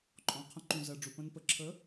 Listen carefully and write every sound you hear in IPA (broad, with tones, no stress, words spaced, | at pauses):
ǃʼɔ̃˨qʰə̃˧ ǃũ˨zɜ˨ɖ͡ʐu˨ pə̃˧npə˨ ǁʰə˨˦